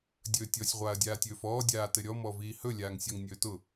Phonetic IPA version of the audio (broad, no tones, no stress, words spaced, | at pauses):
dʲɵːtʲɔsʲ ʁʷaːɐ̯dʲaːtʲɵːfɔː dʲaːtɘɾʲɔ mɔviːhɵ lʲaːŋsʲɔŋnʲɵːtʊ